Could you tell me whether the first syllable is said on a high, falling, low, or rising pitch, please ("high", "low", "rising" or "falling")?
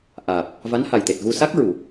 low